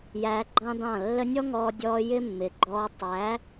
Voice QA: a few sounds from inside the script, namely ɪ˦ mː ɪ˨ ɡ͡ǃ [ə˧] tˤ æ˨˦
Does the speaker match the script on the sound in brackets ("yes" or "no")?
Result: no